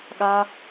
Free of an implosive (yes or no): no